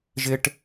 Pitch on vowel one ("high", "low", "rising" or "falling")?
high